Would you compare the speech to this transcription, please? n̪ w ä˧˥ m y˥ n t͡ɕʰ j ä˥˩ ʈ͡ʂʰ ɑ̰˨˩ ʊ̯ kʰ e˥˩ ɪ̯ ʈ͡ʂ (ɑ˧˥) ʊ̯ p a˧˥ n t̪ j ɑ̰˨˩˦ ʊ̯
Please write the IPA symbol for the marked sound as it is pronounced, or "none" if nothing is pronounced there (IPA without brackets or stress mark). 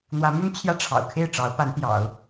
ɑ˧˥